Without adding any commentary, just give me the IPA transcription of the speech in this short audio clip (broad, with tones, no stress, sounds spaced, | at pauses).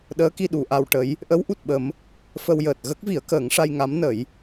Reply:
ɗ əː˧˥ k i˧ ɗ u˨˩ ʔ a˧ w ʈ ə˧˥ j | ʔ ə˧˥ w ʔ u˨˩ t̚ ɓ ə˨˩˦ m | f ə˧ w j əː˨˩ t̚ ɣ ə˦˥ k̚ v i˨˩˦ ə̯ k əː˨˩˦ ŋ ʂ a˧ j ŋ a˧˥ m n ə˨˩˦ j